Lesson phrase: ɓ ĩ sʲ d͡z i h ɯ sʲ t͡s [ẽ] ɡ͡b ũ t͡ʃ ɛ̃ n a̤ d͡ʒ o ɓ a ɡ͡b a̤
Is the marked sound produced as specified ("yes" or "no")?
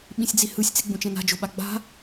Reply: no